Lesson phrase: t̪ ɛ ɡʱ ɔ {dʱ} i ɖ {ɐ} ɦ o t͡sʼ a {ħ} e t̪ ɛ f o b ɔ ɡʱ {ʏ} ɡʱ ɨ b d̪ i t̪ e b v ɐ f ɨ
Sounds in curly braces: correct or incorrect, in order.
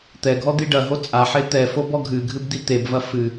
incorrect: d̪, correct, correct, incorrect: ɨ

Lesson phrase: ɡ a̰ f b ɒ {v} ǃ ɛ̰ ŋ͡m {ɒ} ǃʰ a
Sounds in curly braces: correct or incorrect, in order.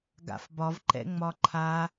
correct, correct

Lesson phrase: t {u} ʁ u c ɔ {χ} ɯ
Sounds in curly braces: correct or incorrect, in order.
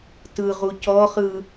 incorrect: ɯ, correct

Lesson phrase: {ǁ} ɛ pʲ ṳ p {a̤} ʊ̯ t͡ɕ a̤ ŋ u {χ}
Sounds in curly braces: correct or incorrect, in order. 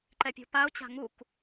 incorrect: ǃ, incorrect: a, incorrect: k

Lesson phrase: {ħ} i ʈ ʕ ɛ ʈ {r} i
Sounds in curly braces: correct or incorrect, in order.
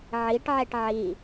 incorrect: ʕ, incorrect: ʕ

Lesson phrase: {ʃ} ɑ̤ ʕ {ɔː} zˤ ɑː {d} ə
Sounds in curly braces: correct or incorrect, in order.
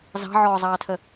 incorrect: z, correct, incorrect: tʰ

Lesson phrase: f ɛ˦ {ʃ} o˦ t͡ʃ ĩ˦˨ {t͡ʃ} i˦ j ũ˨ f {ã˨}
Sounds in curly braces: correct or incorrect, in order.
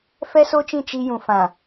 incorrect: s, correct, correct

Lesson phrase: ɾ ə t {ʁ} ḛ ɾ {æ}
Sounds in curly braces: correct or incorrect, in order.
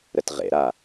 correct, incorrect: a

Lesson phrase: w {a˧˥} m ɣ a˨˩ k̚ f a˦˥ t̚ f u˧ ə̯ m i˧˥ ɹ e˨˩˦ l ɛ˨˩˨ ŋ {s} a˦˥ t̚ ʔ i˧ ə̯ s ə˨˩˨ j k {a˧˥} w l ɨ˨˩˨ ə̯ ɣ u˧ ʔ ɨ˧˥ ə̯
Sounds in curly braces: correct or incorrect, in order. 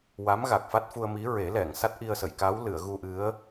correct, correct, correct

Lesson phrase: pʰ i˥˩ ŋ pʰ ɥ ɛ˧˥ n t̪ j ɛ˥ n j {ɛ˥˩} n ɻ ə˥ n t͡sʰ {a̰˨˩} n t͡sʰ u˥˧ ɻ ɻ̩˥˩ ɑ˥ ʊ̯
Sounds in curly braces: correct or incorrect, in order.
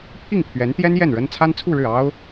correct, incorrect: a˥

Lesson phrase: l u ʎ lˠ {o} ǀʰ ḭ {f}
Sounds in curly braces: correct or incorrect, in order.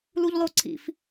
correct, correct

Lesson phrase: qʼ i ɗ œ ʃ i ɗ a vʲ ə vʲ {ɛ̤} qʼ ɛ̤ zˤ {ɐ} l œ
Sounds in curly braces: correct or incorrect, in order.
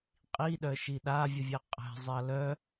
incorrect: ɛ, correct

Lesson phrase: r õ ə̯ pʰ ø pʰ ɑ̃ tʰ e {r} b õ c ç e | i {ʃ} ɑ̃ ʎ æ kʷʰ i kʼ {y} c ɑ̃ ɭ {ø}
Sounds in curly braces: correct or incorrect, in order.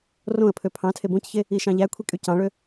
incorrect: none, correct, correct, correct

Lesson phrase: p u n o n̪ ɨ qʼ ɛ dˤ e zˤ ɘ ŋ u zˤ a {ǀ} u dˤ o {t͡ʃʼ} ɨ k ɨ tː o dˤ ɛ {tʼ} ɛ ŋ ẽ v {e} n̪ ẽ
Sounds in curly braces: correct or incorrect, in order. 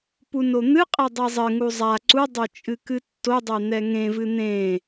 correct, correct, incorrect: n̪, incorrect: ɨ

